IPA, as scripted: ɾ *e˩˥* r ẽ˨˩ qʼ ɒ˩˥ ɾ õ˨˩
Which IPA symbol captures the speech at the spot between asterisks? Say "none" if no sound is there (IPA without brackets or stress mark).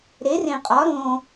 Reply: e˩˥